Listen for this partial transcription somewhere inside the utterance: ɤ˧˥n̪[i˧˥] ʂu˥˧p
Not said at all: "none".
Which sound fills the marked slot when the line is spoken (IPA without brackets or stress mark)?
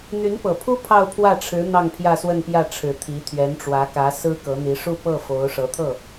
i˧˥